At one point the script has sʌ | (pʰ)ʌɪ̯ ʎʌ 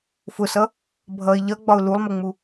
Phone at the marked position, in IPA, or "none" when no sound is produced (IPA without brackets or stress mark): bʱ